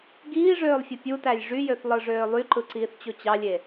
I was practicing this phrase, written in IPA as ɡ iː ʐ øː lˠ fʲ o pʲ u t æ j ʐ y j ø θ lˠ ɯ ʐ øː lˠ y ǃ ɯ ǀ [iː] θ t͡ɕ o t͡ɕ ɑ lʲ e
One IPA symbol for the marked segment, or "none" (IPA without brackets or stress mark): iː